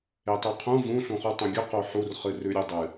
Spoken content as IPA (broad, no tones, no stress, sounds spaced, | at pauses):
e tˤ ʉ qʰ ũ v ũ ɬ ũ χ u tˤ õ ɡʲ ɵ q o ħ u r χ ɨ r ʉ ɾʲ ɵ dˤ ɨ